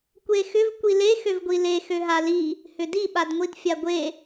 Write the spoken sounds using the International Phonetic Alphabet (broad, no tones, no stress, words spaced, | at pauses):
kʷexʏv kʷile xøvɡʷile xøɦali | hʏdi ɓadŋʷidfʲaɡʷe